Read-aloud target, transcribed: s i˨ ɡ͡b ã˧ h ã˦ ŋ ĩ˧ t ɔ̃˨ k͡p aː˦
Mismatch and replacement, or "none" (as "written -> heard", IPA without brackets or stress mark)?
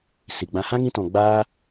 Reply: k͡p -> ɡ͡b